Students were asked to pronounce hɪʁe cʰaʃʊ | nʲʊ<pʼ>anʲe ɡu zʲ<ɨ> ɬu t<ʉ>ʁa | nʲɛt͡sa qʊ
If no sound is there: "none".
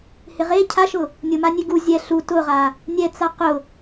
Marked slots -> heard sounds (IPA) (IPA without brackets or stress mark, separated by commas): m, ɛ, ʊ